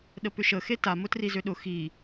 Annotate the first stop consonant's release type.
implosive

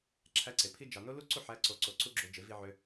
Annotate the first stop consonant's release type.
click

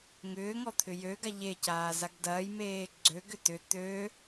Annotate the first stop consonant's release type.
aspirated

